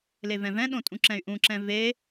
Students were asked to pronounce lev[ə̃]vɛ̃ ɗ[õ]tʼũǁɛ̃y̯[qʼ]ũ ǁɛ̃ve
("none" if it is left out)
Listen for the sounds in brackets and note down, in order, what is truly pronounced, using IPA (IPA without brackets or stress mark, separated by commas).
ɛ̃, õ, ʔ